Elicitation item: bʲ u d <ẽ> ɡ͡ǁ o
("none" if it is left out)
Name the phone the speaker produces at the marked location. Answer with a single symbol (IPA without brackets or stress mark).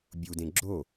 ẽ